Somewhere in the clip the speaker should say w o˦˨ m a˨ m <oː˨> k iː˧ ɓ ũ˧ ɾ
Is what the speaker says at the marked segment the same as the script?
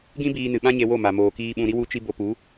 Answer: yes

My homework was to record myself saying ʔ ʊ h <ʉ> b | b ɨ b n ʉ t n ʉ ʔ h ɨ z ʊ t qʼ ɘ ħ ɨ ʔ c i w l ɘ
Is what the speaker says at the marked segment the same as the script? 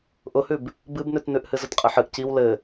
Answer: yes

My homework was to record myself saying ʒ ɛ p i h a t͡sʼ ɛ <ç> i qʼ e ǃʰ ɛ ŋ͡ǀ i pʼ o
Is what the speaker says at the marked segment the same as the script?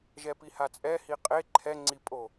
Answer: no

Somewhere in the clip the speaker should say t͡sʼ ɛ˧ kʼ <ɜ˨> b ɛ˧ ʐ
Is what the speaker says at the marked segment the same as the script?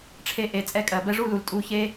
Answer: yes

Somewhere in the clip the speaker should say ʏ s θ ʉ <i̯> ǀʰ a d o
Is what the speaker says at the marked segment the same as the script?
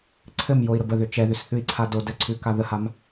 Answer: yes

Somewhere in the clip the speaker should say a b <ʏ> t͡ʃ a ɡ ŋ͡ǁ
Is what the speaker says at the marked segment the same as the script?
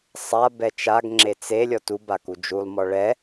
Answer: no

